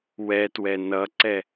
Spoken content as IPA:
wɛtwɛ nʌǀɛ

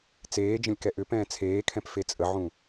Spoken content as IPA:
t͡seː d͡ʒə̃lʲkɛʔʏpɛ̃ː t͡sʰeːkʰɛ̃p fet͡sʼəʕũ

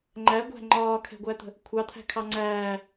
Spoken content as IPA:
ŋ͡ǃæɡʷæ̤ ŋ͡ǃɒːkʰɛ̤ɡʷæt̪ə̤ | kʷʰɑt̪ʰæ̤kʰɑ ŋ͡ǀæː

